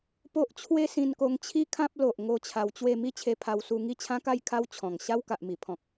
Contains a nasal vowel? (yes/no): yes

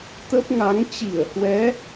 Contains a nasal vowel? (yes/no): no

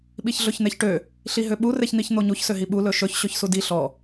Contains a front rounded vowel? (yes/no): yes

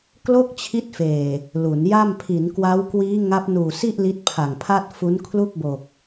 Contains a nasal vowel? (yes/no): no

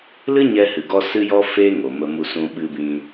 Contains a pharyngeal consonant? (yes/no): no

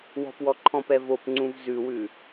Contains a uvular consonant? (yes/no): no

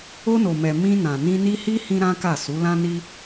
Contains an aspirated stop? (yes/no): no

